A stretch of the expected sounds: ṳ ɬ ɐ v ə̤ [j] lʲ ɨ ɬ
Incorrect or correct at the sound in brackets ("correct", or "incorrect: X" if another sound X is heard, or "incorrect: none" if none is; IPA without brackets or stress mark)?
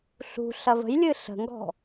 correct